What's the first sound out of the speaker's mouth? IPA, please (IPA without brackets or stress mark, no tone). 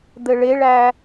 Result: d̪